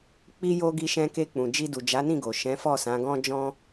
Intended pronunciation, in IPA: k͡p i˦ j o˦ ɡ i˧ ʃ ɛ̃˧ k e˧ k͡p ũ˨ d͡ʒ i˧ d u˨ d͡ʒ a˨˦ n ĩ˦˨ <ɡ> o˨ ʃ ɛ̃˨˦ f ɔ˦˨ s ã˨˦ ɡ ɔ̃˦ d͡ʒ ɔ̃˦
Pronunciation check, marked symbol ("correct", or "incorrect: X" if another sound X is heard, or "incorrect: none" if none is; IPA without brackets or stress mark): correct